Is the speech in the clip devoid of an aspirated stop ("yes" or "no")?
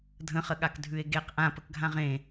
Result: yes